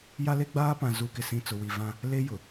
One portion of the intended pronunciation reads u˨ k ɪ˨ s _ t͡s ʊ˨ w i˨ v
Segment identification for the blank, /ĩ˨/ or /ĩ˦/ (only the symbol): ĩ˨